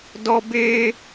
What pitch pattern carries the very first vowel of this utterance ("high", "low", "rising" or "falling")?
high